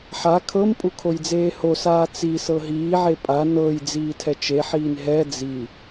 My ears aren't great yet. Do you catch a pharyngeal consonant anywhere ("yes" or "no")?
yes